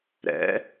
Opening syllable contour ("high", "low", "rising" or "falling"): rising